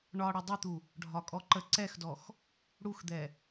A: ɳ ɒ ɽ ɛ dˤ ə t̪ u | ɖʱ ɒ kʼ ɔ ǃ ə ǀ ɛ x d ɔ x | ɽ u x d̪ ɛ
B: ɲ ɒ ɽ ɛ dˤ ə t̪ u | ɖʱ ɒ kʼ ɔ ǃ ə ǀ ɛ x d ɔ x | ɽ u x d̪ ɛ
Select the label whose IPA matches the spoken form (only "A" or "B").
A